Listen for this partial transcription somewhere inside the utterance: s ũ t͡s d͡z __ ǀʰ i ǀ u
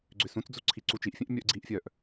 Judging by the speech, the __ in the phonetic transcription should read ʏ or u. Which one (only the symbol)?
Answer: u